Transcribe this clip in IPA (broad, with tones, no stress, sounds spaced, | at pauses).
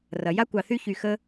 r ɐ˩ j a˥ kʷ ɑ˨ θ y˦ ç y˨ x ə˥